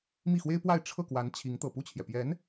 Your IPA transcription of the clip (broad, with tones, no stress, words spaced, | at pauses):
mi˥˩xwe˥ɪ̯pwa˥˧ɪ̯ ʈ͡ʂʰɤ˥˩kwa˧˥n t͡ɕʰi˧˥ŋ t̪ɤ˨˩pu˥˩t͡ɕʰjɛ˩pjɛ˧˥n